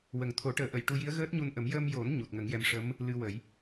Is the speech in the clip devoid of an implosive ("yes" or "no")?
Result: yes